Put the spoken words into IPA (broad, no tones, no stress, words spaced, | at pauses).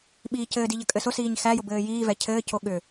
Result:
ɓiːcɘːdi ʎəkʼɘsʊsiːɲ xæjʊ bɘːjiːvɛ cʰɘːco ɠʏ